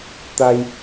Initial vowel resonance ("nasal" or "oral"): oral